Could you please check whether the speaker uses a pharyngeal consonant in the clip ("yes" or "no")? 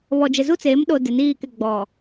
no